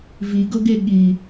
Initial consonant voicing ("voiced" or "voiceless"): voiced